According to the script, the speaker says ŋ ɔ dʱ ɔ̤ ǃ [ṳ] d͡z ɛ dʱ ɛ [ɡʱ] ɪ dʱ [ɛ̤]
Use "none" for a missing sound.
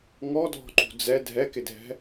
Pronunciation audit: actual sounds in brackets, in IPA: ṳ, k, ɛ̤

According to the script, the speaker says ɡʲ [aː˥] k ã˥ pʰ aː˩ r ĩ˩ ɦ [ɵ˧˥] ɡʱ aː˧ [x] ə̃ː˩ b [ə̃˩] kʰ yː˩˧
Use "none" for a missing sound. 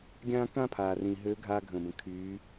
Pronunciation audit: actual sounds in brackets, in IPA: ãː˥, ø˧˥, ɡʱ, ə̃˩

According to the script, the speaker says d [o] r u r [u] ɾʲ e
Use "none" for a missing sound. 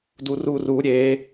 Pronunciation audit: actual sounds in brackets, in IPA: u, u

